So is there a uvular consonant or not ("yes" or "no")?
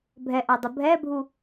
no